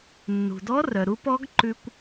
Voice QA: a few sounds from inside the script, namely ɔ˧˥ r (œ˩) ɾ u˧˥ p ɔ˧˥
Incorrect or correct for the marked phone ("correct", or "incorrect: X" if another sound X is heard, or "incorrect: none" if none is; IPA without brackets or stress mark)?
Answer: correct